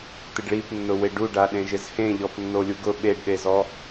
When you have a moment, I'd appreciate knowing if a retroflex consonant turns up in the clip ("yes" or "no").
yes